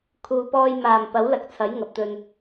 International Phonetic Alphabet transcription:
kʰuː˨pɔː˧j maː˨˩m pɐ˨˥wlɐ˨k̚ t͡sʰɐ˨˥j ŋɐ˨p̚t̪ɵ˨n

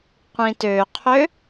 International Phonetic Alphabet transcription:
qʷĩtøqʰø

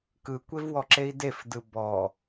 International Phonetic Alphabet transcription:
kɯkʷevwɔǁei̯ defdɯ bɔ

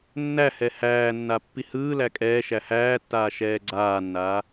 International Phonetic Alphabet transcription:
nːæhɛ hæːnːa pːihɯːlæ kʼɛː ʃæhæːtːaː ʃɛːɡ͡ǀaːnːaː

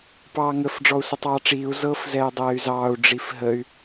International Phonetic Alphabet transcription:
pɑːŋəf ɖ͡ʐɔu̯sətˤɑːʈ͡ʂiːu̯ zɤf zɛːdˤɛːy̯zɑːu̯ ɖ͡ʐifɦəy̯

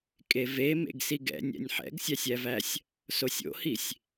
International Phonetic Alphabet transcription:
kʼeve mḛɡsiɡɛ̰nʲɛ̰nʲ ħɛ̰ɡsʲæsʲævæsʲ | sosʲo̰hisʲ

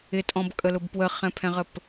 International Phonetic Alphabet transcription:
ɪtʼɔ̃bkʼəlʊb pwəχɛ̃pʰɛ̃ʁəp

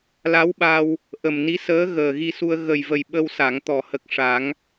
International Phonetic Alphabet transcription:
la˧˥wɓa˧w | ʔə˨˩mni˧˥səː˧˥ ɣəː˨˩ɣi˧su˧ə̯ ɣə˨˩j və˨˩j ɓə˧wsa˨˩˨ŋ t̪ɔ˨˩˨hə˨˩k̚ ʂa˨˩˦ŋ

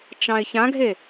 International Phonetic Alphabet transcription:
t͡ʃɑ̃ɪ̯çãɡʱe

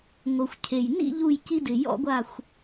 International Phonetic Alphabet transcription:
ŋo˩xʷ cʰe˩jnḭ˥˧ ʎu˧˩jci˧dɪ˩ jɔ̰˧ɡʷa˧˩xʷ

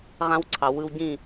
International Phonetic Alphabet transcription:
ʁã˦wǀʰɑ˨ wɯ˧wɟĩ˦˨

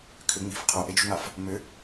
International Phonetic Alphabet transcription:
kʰʏ ŋ͡mi̤f qʰoʔed͡ʒṳŋaf | mʏ

